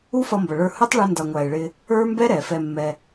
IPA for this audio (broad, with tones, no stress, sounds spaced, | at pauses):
u˦ f ʌ˧ m b ʌ˨ ɭ ə˞˧ h ʊ˦ tˤ ɭ u˧ n d ʌ˨ ŋʷ æ˨ e̯ ɭ ɪ˧ | ə˞˦ m b ɛ˦ ɾ ɛ˨ f ɛ˧ mː ɛ˧